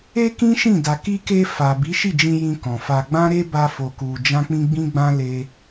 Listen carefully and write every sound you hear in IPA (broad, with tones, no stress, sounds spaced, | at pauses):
e˦ k ĩ˦ ʃ ĩ˦˨ d a˨ k i˧ k e˧ f a˨ b i˨˦ ʃ i˦˨ d͡ʒ ĩ˧ j ĩ˧ k ɔ̃˨ f a˧ ɡ͡b ã˦ ɾ e˦ b a˧ f o˧ k u˧ d͡ʒ ã˦ k͡p ĩ˦ ɡ͡b ĩ˦ ɡ͡b ã˦ l e˦